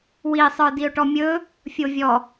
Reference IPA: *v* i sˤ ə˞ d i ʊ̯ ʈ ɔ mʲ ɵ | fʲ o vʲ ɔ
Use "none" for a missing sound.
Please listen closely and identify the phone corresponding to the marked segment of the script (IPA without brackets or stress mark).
w